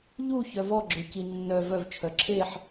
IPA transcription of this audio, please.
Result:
ʎ u ç œ v ɔ ɡ͡ǁ ø c i nː œ v œ v t͡ʃʰ œ ǁʰ e ħ

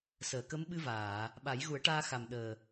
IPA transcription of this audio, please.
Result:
s əː˨˩˨ k ə˧˥ m ɓ ɨ˧ v aː˨˩˨ | ɓ a˨˩˦ j ɣ u˨˩˦ ə̯ ʈ aː˧ x a˨˩ m ɗ əː˨˩

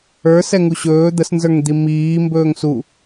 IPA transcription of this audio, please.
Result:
ə˞ s ɛ ŋ u ɕ ɵː d̪ ə s n z ə˞ ŋ d̪ i m iː m b ɵː ŋ s u

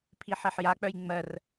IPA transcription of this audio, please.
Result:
pʰ i ħ e ħ j a k͡p œ j ŋ͡m ɜ r

